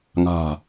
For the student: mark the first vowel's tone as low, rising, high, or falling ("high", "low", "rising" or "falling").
low